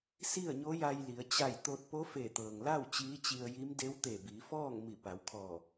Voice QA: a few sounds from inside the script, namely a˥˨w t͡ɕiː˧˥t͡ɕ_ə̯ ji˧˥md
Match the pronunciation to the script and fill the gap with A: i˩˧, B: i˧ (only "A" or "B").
B